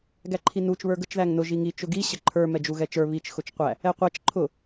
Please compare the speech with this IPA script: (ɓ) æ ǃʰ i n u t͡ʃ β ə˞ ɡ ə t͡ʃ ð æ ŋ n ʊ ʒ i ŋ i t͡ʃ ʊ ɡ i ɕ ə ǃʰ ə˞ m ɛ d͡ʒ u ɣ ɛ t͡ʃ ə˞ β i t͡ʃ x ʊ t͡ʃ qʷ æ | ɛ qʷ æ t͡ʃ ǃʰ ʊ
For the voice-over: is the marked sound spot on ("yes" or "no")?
no